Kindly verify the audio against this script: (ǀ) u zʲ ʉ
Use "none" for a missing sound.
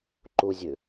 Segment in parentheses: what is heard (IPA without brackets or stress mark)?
ǃ